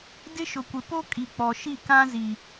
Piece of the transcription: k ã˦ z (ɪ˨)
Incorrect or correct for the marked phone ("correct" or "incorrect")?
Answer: incorrect